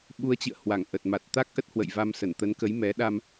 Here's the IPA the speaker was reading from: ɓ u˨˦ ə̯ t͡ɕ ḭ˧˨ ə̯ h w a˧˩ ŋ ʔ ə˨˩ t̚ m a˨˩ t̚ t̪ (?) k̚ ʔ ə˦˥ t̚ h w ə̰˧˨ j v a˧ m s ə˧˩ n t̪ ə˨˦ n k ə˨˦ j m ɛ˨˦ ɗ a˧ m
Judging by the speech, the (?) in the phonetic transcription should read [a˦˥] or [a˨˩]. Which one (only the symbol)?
a˦˥